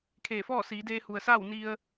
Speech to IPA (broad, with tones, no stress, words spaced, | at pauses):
kʰeː˧˩fɔː˥˨ siː˩˧deː˧ hu˩ə̯saː˥˨w ni˧ə̯